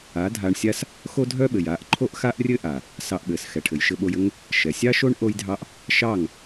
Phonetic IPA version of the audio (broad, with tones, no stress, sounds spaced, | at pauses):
a˨˦ dʱ a˧ ɳ sʲ a˦ s | x o˦ dʱ œ˦ ɓ ɘ˨ j a˧ ʔ ǃʰ o˦ ʔ x a˦ ʔ rʲ ɘ˦ ʔ a˨ | s ɑ˧ ʔ ɓ ɘ˨ s x ɛ˨ ʈʰ ɘ˨ j ʃ ɘ˧ ɓ o˧ j ɘ˦ ŋ | ʃ ɛ˨ sʲ ɑ˦ ʃ o˦ ɳ ʔ o˦ j dʱ ɑ˦ ʔ | ʃ ɑ˦˨ ŋ